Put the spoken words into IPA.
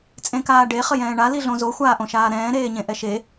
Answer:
t͡sʼ ẽ k aː ɖ e χ ə j ɛ̃ː ɳ a l i ɮ õ z o xʷ aː ʔ õ ʃ aː ɾ ɛ̃ː ɾ eː ɲ ẽ ʔ ɛ ʃ e

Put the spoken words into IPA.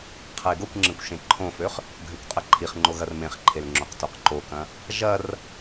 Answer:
qʰ ɐ ɪ̯ ɡ o kʷ ŋ͡ǁ ẽ kʷ ʃ ẽ ǃʰ õ f ø χ | ɡʱ ø kʷ qʼ ɐ ǃʰ i χ ŋ͡ǃ o ɣ ɐ r m ẽ χ ǃʰ e l ŋ͡ǁ o q t o q ǃ o k ɐ̃ | ʒ ɐ r

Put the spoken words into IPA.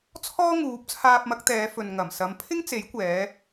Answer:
t͡sʰ ɔː˥ ŋ uː˨˥ p̚ t͡sʰ aː˧ p̚ m ɐ˨˥ k̚ t̪ ɛː˨˧ f ɵ˨ n ŋ ɐ˨˩ m s ɐ˨˥ m pʰ ɪ˥ ŋ t͡s e˨˥ j kʷ ɛː˨˧

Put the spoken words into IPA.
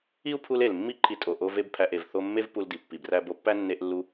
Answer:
i˦ u̯ pʰ u˧ l e˨ l mː i˦ ǃʰ i˧ tʼ o˨ ʔ o˧ v e˦ b pʰ æ˧ ʔ e˨ v θ o˧ mː e˦ v p u˧ l d i˨ pː i˨ b r æ˧ b o˧ pː æ˦ nː e˧ ʔ lː u˧

